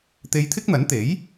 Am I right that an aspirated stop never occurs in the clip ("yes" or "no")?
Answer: no